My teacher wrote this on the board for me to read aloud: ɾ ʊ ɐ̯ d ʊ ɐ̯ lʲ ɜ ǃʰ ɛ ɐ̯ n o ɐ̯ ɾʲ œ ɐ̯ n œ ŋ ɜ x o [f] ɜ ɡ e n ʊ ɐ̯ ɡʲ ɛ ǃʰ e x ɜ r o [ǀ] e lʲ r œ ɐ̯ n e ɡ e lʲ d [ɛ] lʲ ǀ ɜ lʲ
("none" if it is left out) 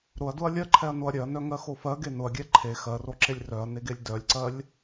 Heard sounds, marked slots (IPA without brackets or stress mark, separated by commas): f, ǁ, œ